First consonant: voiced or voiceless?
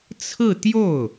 voiceless